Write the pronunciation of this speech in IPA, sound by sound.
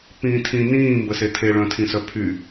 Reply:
p ĩː tʰ ĩ n ĩː m b ə s e tʰ e ɭ œ̃ tʰ ĩ s œ pʰ y

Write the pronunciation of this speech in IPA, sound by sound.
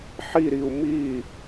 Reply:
ħ i ɾ i u̯ m i

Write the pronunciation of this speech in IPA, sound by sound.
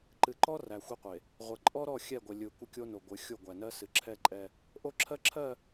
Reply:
ǃ ɨ˨ ǃ ɔ˦ r æ˨ xʷ e˦ qʷ e˨ | ʁʷ ə˨ ǃʼ ɔ˦ ɾ ɔ˦˨ xʲ ɛ˦˨ ɡʷ ə˨ lʲ ɯ˨ kʷ ə˦ kʲ o˦ n o˨ ɡʷ ɨ˨˦ xʲ o˦˨ ɡʷ æ˨ n ɜ˦ s ɨ˨ ǁʰ ɛ˦ ǃʼ ɛ˦ | ʔ o˦ ǁʰ ɜ˦ ǁʰ ɜ˦˨

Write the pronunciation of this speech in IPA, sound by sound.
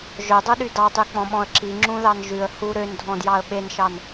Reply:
ʒ œ dˤ u ɗ y d ɑ tˤ y k͡p ɔ̃ ɓ ɔ̃ ə̯ ǁ i ŋ͡ǁ ũ ð ɑ n ʒ ʉ ə̯ h u ɾ ø n dʱ ɔ̃ d j ɑ ə̯ ɓ e n ʃ ɑ n

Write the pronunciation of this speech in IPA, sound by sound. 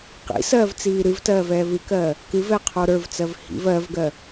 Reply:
q ḭ s ɜː v t͡s iː ɾ ɨ v t ɜː v ɛː v ɨ k ɜː | k ɨ v ɛ qʰ o ɾ ə˞ v t͡s ɜ v h ḭ v ɜ v ɡ ɜ

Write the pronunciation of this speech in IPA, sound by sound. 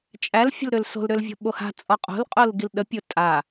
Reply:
t͡ʃʼ æ l fʲ ə̤ l ɾ ʏ l s o̤ l ɾ ʏ l vʲ ɔ̤ ɓ o h a̤ t͡sʼ ɔ qʼ o̤ l qʼ o l ɡ i l ɗ ə pʲ o tʼ a

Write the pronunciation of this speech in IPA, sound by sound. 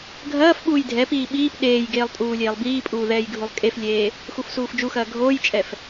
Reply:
ɡʱ ɐː f ɓ uː j dʱ ɛ p iː ɓ iː p ɗ eː j ɡ eː lˠ tʼ uː lʲ eː lˠ b iː pʼ uː ð ɛː j ɡʱ u lˠ kʼ e f lʲ eː | x u f s uː f d͡ʒ u x ɐː ɡʱ oː j t͡ʃʼ ɛ f

